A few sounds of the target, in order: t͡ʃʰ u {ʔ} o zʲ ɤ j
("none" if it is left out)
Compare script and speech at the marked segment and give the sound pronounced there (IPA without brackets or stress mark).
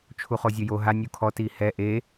χ